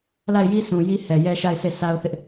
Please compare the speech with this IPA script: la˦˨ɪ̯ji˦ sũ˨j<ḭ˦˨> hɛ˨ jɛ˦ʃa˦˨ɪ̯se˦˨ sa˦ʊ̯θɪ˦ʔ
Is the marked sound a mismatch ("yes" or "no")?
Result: yes